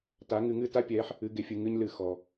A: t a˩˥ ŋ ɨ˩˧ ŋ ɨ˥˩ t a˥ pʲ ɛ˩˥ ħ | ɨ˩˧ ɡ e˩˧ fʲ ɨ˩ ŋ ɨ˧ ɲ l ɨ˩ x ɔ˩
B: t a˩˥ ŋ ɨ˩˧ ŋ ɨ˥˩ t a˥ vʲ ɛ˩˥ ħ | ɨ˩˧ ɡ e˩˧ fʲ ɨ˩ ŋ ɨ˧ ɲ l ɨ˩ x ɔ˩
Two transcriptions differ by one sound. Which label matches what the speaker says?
A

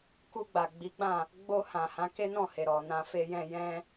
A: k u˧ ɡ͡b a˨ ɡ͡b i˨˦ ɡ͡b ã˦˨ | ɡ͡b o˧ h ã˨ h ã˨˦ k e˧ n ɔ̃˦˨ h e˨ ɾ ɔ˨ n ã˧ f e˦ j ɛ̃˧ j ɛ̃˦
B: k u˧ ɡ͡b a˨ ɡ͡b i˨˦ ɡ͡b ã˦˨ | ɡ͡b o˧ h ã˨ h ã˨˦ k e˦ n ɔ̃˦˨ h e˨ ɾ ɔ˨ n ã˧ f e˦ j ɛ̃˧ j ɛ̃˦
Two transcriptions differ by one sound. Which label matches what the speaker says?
B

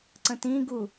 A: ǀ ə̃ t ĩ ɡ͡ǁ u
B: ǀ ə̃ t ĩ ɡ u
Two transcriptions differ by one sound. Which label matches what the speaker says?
B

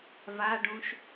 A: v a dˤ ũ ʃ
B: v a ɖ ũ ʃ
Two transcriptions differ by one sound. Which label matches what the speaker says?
B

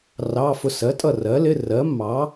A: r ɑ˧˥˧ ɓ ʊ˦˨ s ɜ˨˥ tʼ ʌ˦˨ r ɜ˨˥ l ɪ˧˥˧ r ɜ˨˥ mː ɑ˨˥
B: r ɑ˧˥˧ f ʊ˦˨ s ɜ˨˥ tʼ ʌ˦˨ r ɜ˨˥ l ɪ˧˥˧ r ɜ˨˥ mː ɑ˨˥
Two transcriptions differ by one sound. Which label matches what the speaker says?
B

